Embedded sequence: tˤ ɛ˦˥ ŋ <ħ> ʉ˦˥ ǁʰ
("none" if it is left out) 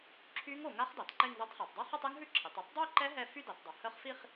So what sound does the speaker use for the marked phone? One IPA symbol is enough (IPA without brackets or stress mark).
ɦ